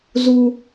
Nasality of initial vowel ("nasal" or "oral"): oral